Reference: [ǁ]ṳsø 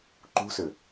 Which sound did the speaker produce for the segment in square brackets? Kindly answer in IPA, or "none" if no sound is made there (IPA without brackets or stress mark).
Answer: ǃ